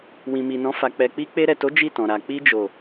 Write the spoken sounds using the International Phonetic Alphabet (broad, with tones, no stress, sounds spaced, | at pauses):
w ĩ˨ m i˨ n ɔ̃˨˦ f a˧ k͡p ɛ˧ k͡p i˦ k͡p e˧ ɾ ɛ˨ t o˨˦ d͡ʒ i˦˨ t ɔ̃˨ ɾ a˨ k͡p i˧ d͡ʒ o˨